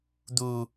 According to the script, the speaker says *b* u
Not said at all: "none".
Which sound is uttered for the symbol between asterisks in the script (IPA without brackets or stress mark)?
d̪